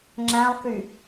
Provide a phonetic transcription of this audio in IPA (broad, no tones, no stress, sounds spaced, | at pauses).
ŋ͡ǁ æ̃ lˠ k y